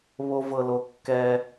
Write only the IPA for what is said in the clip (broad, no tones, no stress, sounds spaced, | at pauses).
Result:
β o v ɤ l o kː ɛ